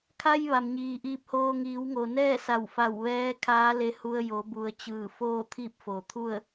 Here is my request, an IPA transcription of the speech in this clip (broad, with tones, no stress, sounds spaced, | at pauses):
kʰ a˧ j ʋ a˩ m ɲ iː˩ ʔ iː˧ p̚ h oː˧ ŋ iː˩˧ w ŋ o˩ n ɛː˥˨ s a˧˩ w f a˧˩ w ʋ ɛː˧˥ kʰ aː˧˥ l e˧ h u˧ ə̯ j o˩˧ b u˩ ə̯ t͡ɕ ɯː˧˩ f oː˥˨ t̪ʰ i˥˨ p̚ f o˩ t̪ʰ u˥˨ ə̯